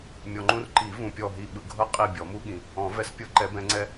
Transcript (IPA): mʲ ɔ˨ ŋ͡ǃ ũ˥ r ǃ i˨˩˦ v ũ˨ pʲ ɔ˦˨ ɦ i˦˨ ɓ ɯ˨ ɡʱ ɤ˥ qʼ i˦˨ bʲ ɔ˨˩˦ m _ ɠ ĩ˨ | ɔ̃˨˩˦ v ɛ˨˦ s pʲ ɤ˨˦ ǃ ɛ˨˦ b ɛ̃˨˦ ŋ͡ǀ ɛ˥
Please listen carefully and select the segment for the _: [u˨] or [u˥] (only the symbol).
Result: u˥